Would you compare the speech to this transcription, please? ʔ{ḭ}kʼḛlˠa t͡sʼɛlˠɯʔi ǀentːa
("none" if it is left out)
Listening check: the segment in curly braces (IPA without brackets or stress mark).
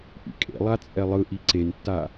ḭ